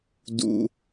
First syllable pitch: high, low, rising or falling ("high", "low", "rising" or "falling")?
low